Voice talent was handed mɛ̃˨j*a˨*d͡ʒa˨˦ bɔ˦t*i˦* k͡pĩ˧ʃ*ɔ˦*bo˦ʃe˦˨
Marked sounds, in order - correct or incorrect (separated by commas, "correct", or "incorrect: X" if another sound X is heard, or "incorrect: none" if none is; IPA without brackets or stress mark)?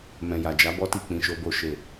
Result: correct, incorrect: i˦˨, incorrect: o˦